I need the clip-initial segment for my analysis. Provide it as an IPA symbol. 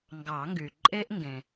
ŋ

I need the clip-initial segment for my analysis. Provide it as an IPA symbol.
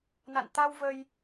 n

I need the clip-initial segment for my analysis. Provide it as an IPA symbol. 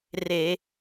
r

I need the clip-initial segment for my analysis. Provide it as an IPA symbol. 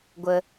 ɡʷ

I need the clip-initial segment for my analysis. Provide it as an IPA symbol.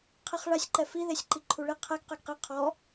qʰ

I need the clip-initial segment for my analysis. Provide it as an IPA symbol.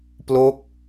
p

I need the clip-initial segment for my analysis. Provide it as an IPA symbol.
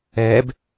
ɛ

